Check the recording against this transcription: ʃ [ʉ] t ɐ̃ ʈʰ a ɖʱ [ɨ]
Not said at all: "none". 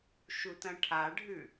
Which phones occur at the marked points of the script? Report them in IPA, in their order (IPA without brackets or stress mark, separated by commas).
u, ʉ